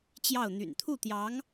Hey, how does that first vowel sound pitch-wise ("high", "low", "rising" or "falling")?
falling